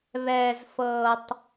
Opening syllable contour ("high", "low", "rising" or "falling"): low